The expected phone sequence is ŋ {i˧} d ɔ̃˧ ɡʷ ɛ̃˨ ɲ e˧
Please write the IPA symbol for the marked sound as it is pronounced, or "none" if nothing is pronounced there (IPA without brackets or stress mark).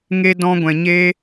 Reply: e˧